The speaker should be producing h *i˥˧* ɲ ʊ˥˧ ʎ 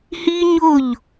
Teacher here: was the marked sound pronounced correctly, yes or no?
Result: no